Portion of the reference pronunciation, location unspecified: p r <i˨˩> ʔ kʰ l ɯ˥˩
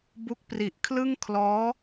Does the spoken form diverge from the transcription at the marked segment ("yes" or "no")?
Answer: no